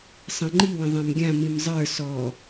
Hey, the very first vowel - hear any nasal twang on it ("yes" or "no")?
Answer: yes